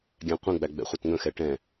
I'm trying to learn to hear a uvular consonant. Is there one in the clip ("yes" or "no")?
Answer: yes